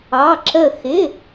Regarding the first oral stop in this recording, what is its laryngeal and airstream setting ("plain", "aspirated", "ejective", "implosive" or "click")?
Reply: click